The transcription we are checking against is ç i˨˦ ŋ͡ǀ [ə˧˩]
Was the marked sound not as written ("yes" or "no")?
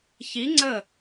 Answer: no